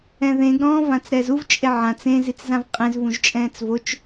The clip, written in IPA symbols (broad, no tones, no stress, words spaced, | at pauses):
ɛ̃ðẽɡ ɾɔ̃ːvãt͡sɾɛːzuv t͡ʃʼeʕã t͡sẽ zit͡szãvqʼẽz vũʒt͡ʃʼɛ̃ːt͡svot͡ʃ